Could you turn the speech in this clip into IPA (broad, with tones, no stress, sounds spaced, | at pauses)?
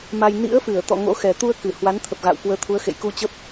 m a˧ j n ḭ˧˥ ə̯ f ɨ˧˩ ə̯ t̪ ɔ̰˧˨ ŋ o̰˧˥ x ɛ˨˩ t̪ u˧ ə̯ k ɨ˧˩ h w a˨˦ n t̪ʰ ə˨˩ p̚ ɣ a̰˧˨ w k w əː˨˦ t̪ʰ u˨˦ ə̯ x ḛ˧˨ j k u˧ t͡ɕ ə˦˥ p̚